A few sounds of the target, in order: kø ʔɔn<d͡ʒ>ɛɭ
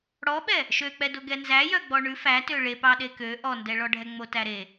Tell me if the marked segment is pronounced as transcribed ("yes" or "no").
no